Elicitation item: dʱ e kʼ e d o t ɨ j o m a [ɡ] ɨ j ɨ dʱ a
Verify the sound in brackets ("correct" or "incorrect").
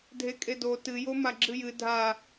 incorrect